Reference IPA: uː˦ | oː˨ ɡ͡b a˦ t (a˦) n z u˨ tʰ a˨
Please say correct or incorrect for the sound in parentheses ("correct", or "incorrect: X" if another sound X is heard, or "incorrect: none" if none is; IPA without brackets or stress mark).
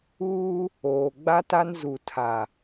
correct